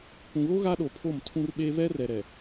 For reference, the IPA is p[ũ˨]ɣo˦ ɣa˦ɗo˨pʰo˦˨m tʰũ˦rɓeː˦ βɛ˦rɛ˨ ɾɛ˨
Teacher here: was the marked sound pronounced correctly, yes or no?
yes